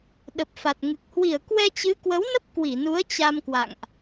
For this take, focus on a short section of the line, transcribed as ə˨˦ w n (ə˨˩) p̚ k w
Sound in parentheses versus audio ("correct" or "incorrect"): incorrect